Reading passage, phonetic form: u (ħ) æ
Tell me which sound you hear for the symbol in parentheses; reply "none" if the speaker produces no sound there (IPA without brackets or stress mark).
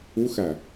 x